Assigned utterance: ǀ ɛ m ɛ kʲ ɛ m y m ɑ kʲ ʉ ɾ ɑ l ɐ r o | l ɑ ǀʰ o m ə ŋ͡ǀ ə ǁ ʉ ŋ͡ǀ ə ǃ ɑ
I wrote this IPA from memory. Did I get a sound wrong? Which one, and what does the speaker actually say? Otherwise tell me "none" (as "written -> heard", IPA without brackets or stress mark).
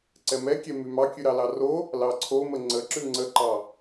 ɐ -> ɑ